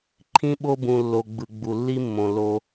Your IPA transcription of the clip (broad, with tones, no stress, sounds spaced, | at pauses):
ǃʰ ĩ˧ ɓ o˧ b ũ˨ lː o˨ ɡ͡b ɯ˨ ɡ͡b u˨ lː i˦ mː õ˨ l o˧